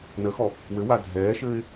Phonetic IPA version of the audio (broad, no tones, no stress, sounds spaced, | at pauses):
n ə x ɔ | w ɘ w a dʱ ɛː ʃ ɘː ɪ̯